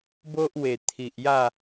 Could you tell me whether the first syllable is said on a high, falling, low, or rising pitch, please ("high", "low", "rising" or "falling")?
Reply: high